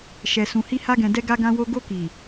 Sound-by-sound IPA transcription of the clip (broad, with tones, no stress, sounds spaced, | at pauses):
ʃ ɛ˨ s ũ˨ h i˧ h a˧ ɡ ɛ̃˨ d ɛ˧ ɡ a˧ ɡ ã˧ w o˧ ɡ o˧ k i˨